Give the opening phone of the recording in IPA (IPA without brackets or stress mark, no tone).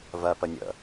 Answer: v